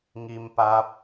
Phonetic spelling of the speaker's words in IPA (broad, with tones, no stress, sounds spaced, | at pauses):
ŋ i˩ m p a˧ p̚